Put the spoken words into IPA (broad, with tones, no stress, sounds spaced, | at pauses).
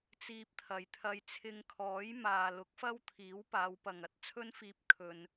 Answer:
t͡s iː˧ p̚ t̪ʰ ɐ˨ j t̪ʰ ɐ˧ j t͡sʰ ɪ˧ ŋ kʰ ɔː˨˥ j m aː˨ l ʊ˨˥ k̚ f ɐ˥ w t̪ʰ iː˨˥ w p aː˨˧ w p ɐ˨ ŋ ɐ˨ t̚ t͡sʰ ɵ˥ n f iː˧ p̚ kʰ ɵ˨ n